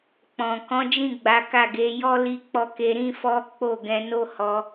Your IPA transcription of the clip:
k͡p ɔ̃˨ k ɔ̃˨˦ d͡ʒ ĩ˦˨ ɡ͡b a˨˦ k a˦˨ ɡ e˨˦ j ɔ˦ l i˧ k͡p ɔ˧ k e˧ ɾ ĩ˦ f ɔ˦ k͡p o˦˨ ɡ ɛ̃˧ n o˦ h ɔ˧

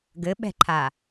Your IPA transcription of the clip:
ɡ ɘ ɓ ɛ̤ ǃʰ a

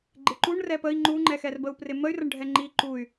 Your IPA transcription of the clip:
ɡ͡ǃ ɪ ǃ u ɳ r ɛ p ə i̯ ŋ͡ǃ u ŋ͡ǃ ɛ x ɛ r b ə u̯ p r ɪ m ə y̯ r ə ɳ ɖʱ ɛ ŋ͡ǃ i ǃ u y̯

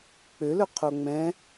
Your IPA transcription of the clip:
k͡p ø l ɵ qʰ o ŋ͡m ɛ̃

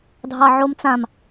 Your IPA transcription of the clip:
dʱ ɑ ʕ o m t͡s ã m

